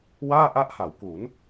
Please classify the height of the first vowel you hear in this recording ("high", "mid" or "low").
low